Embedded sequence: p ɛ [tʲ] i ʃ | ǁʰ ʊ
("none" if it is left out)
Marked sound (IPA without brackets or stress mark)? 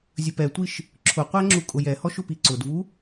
tʷ